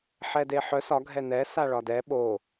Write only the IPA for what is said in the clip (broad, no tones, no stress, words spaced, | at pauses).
ħɛdeħœs ɒ ɡʱɛnɛ saɭɒdɛ ɓo